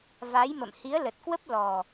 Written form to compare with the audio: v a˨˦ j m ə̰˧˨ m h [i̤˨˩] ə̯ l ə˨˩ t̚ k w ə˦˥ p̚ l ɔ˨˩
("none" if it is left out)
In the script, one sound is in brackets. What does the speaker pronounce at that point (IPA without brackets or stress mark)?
i˨˦